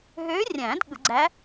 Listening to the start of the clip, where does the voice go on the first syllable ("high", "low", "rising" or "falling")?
rising